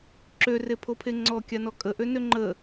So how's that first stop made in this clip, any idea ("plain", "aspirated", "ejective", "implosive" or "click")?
click